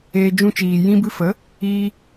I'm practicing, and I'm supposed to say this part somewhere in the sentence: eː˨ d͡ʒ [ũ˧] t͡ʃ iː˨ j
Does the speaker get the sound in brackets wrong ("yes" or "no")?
no